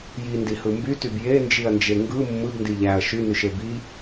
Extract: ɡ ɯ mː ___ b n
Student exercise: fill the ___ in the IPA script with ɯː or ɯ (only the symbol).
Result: ɯ